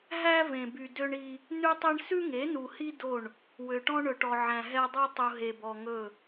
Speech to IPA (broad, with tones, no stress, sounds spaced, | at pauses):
ɦ æ˦ v ẽ˨ b y˨ d ø˦ ɳ i˦ | n ʉ˦ tˤ ɛ˦ ɳ s ʉ˦ ŋ e˨˦ n u˨ h i˦ d o˦˨ ɳ | w ø˨ ʈ ɔ̃˦ ɳ ɵ˨ ʈ ɔ˨ ʕ æ̃˨ ɦ ɛ˦ dˤ æ˦ tˤ u˨ ɦ e˨ b ɔ˨ ŋ ɵ˦˨